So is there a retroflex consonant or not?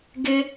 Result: no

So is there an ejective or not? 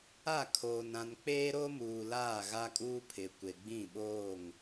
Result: yes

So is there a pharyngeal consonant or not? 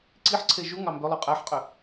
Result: yes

